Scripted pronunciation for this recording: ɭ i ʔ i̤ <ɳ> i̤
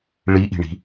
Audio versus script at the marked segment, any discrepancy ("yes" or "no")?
no